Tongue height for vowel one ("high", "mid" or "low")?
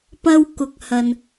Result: low